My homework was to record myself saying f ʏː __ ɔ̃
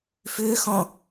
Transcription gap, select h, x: x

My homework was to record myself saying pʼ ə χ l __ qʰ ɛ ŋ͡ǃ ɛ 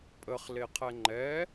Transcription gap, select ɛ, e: e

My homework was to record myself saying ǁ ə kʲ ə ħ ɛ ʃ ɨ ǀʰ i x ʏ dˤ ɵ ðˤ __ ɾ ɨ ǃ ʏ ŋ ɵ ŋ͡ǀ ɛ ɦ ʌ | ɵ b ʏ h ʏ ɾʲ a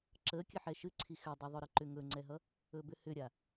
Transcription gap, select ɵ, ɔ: ɵ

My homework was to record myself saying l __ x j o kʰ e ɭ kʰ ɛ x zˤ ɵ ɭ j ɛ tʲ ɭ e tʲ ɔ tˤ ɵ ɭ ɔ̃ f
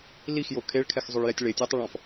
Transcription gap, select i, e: i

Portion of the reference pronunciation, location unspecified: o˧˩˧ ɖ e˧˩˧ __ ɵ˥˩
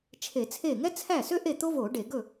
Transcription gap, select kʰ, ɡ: ɡ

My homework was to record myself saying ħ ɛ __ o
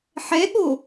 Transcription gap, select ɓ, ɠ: ɠ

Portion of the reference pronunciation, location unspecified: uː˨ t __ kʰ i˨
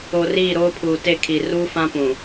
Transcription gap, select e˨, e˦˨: e˦˨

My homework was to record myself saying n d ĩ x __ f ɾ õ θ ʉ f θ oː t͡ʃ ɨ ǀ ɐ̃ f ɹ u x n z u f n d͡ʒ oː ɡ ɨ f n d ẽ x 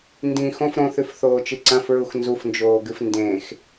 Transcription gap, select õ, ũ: õ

